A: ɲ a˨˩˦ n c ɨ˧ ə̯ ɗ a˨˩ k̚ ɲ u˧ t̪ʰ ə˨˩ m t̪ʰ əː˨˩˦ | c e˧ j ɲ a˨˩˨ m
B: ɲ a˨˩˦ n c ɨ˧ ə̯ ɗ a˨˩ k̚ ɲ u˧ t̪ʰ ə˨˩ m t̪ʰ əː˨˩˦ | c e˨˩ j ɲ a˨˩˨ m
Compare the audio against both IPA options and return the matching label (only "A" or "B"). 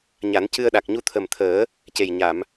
B